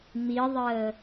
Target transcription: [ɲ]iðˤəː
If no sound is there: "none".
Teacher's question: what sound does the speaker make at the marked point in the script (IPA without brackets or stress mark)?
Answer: m